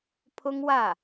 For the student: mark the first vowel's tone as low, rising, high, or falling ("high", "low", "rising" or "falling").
high